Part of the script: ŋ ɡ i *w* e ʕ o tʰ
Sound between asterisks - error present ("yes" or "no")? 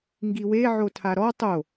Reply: no